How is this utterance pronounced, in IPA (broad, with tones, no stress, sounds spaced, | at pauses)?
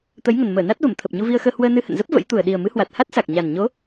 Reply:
t̪ ə˨˦ j ŋ ə˨˩ n m əː˧˩ n a˦˥ t̚ v ə˧˩ m t̪ʰ ə˨˩ p̚ ɲ u˧ v i˧ ə̯ x əː˧ h w əː˧ n ɨ˧ h ə̰˧˨ n z ə˦˥ p̚ v ə̰˧˥ j t̪ u˨˩ ə̯ ɗ i˨˩ ə̯ m ɨ˨˦ h w a˨˩ t̚ h a˦˥ t̚ s a˨˩ k̚ ɲ a˨˩ n ɲ o˨˦